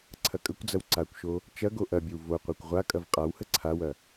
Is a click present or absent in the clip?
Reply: present